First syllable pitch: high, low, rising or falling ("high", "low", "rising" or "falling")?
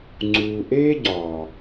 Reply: low